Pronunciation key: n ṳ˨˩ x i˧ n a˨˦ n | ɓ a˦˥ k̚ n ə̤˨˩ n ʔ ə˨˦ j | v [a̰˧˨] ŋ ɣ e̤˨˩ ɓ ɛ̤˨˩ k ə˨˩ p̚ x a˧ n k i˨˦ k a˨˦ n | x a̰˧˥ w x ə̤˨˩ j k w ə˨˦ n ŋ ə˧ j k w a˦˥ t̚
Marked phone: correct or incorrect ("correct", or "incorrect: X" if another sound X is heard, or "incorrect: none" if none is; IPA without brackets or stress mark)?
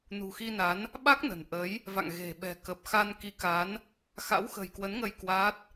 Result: correct